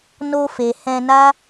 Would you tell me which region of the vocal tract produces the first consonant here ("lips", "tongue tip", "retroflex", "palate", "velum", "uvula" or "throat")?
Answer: tongue tip